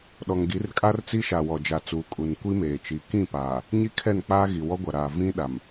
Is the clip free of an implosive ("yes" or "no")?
no